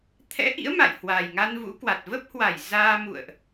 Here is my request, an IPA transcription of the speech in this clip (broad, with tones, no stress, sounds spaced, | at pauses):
t̪ʰ ɛ̰˧˥ ʔ ḭ˧˥ ə̯ m a̰˧˨ j h w a˨˩ j ŋ a˧ n v ṵ˧˥ k w a˨˩ t̚ v ə˦˥ p̚ h w a˧˩ j z aː˧ m ṵ˧˨ ə̯ ʔ